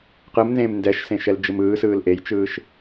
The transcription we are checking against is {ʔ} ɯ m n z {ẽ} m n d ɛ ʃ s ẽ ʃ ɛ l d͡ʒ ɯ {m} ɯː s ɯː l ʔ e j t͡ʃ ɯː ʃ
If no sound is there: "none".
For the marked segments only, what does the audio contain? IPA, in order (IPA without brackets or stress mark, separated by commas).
q, ẽː, m